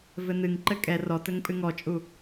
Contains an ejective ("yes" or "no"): yes